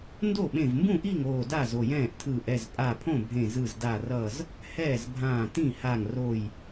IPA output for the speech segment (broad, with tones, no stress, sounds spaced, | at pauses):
n d o˥˩ ɓ ẽ˧˩ v m b ũ˥˩ ʔ i˥˩ ŋ oː˧˩ d a˥˩ z o˧˩ j ɛ̃ː˥˩ ʔ tʰ ɯː˧˩ ʔ ɛ˥˩ z pʼ a˧˩ pʰ õ˥˩ bʱ ẽ˧˩ z ɯ˧˩ z d a˧˩ r ʌː˧˩ z | h ɛː˥˩ z bʱ ãː˧˩ t ĩ˥˩ h a˧˩ ŋ r oː˧˩ j